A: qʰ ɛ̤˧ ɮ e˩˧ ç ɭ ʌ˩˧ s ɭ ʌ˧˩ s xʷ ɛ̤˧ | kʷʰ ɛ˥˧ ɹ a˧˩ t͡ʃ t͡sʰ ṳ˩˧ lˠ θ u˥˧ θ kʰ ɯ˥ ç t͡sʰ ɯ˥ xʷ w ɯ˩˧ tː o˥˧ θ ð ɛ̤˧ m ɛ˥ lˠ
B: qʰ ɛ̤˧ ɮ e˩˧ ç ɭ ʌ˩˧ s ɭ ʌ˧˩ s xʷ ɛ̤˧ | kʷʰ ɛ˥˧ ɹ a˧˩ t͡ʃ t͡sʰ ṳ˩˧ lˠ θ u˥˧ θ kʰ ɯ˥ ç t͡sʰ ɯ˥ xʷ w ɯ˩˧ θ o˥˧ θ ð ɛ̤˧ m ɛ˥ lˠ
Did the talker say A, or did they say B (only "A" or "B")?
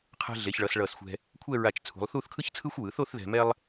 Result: B